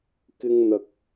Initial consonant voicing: voiceless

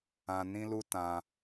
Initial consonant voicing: voiced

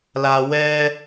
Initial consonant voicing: voiced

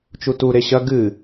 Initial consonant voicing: voiceless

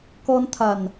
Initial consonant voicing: voiceless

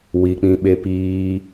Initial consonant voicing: voiced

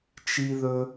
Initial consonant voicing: voiceless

